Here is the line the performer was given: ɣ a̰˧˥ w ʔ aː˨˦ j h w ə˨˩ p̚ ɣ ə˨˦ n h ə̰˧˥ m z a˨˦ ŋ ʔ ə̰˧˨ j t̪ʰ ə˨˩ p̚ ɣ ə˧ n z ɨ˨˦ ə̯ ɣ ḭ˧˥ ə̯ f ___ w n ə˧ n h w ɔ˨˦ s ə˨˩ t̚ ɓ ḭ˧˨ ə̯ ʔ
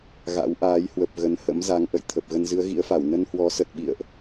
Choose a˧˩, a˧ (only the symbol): a˧˩